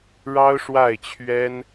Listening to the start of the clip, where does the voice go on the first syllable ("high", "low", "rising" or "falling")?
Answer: high